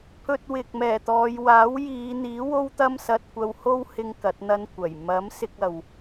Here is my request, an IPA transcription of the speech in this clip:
pʰɵ˧t̚wɪ˨k̚mɛː˨˩t̪ɔː˨˧j waː˨˥wjiː˨˧n̪iː˨˥ wo˥wt̪ɐ˥msɐ˧t̚ kʷɐ˧who˥whɪ˧ŋ kɐ˨˥t̚n̪ɐ˥nkʷɐ˨˩j mɐ˨˥m sɪ˧k̚ɐ˨w

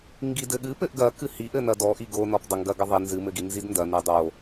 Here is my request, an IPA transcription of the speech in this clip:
ŋɡidɘɠɨ pɘʔɡɐkɨ hiʔɘ nɐdɔʔi ɡonɔp dˤɐŋɡɐɡɘ ðˤi nzɨmɘɡi nzidndɐ nɨdˤo

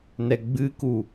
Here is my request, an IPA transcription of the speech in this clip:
nɛɡ͡bɨku

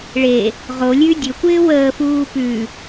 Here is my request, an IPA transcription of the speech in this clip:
ɭe | ʁolʲʉ dʲɵkʷɪː wəːfuː pʉ

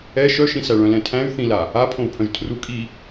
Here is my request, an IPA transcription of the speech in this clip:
ɛ ʃœʃĩ sæɭœ̃lɛ̃tʰæ̃y̯ θĩla | apʰõu̯pʰœ̃ʒ tʰru kʼi

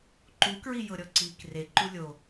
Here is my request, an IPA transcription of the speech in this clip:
ǃukɹijɤ ɾʲɔǀiːkreǃu lʲo

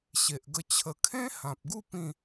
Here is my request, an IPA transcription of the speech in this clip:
ɕe˨ʔɡə˧ t͡ɕʰə˨˩kʰẽ˦ hã˨p̚ɡu˥˧ pĩ˥˧

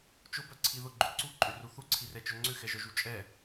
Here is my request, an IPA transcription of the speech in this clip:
t͡ʃʊbœǀʰi ðʊɡ͡ǃʏ ǀuǃʼʏru θuǀʰirɛt͡ʃœ ŋ͡ǀʏxɛʒœʒu t͡ʃʼɛ

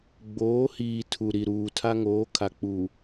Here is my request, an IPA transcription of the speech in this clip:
ɡ͡boː˨˦hiː˨ tʰu˨ ɾi˨ɾuː˨ tʰa˦ŋoː˨˦kʰa˨k͡pu˨

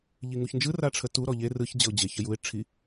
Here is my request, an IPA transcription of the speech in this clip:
ʎiŋuçnd͡ʒɯ raʈ͡ʂʰətu ɾɔʎe rɯç d͡ʑəʊ̯d͡ʑe çəjuɪ̯ ʈ͡ʂʰi

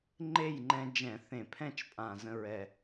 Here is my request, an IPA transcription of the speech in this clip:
ŋ͡ǃe˥˨jŋ͡ǃɛ̃˧ d͡ʒɛ̃˧˩˧ θẽ˧˩˧pʰɛ̃˥˨t͡ʃpʼã˨˩ zə̃˧ɹɛ˨˩

